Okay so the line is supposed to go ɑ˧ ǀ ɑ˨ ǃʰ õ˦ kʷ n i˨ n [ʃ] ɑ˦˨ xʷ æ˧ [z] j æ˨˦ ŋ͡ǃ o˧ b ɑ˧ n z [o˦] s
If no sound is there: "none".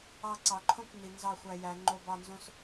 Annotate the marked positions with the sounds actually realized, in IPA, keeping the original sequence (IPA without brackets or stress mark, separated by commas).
z, none, õ˦